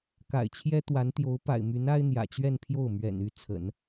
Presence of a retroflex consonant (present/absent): absent